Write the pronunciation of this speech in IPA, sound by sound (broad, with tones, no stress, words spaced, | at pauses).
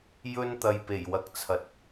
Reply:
jɵ˧nt̪ɐ˨jpe˨˩j wɐ˨k̚t͡sʰɐ˨t̚